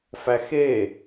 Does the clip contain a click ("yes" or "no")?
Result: no